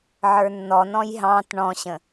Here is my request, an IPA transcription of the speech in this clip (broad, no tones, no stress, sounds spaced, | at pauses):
ʕ ə˞ nː ɔ n ɔ̃ j ɦ ɑ̃ t ɳ ɔ̃ ɕ ə̃